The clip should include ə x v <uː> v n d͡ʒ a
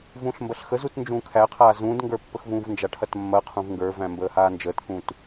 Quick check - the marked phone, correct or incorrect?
incorrect: ũː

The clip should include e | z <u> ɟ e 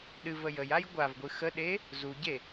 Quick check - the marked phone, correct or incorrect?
correct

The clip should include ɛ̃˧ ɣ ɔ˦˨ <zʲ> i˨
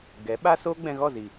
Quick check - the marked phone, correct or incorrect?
incorrect: z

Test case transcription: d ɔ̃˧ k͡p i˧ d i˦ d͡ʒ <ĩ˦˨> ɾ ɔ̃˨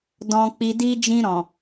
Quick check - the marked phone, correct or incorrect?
incorrect: ĩ˧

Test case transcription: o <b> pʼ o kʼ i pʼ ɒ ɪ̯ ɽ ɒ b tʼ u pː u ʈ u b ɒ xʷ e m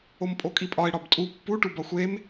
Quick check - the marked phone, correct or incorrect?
incorrect: m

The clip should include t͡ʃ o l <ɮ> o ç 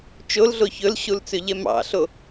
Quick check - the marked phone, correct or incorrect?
correct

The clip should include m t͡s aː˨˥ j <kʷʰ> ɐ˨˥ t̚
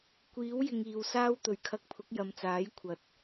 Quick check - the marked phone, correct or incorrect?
correct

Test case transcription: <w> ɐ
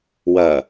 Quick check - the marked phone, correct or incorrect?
correct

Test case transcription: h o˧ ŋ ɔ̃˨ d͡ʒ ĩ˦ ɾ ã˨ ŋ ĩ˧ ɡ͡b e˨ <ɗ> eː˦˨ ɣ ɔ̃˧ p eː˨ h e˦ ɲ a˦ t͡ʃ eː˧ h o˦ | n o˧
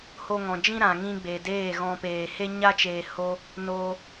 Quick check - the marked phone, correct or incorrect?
incorrect: d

